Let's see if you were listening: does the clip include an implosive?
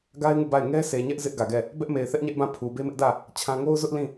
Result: no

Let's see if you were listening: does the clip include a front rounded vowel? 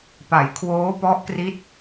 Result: no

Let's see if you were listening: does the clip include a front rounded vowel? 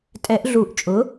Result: no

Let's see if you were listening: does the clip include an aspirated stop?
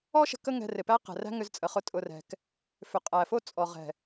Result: no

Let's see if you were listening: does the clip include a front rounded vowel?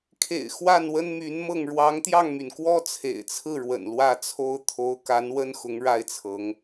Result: yes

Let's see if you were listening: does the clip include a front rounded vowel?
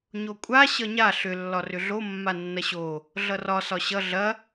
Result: yes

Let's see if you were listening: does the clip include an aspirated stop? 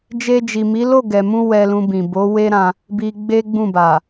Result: no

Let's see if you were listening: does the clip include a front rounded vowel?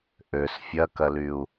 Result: yes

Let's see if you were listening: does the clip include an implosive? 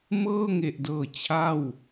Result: no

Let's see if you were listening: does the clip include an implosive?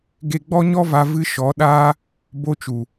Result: yes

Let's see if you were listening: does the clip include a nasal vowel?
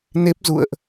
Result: no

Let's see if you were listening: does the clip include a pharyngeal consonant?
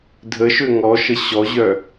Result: no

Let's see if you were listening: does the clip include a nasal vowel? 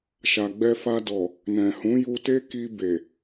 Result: yes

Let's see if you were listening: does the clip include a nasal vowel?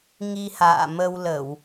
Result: no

